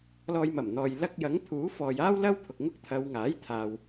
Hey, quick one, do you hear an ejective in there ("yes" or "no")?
no